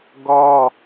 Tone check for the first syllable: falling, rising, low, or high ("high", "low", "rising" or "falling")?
high